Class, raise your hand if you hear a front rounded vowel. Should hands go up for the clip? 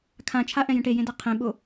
no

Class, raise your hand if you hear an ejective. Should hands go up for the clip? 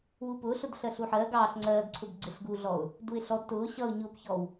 no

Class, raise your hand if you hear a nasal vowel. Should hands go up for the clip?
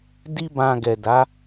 yes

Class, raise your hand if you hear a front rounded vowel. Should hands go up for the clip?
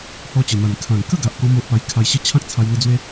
no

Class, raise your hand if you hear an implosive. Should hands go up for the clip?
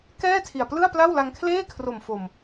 no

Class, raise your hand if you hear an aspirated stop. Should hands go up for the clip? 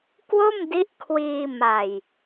yes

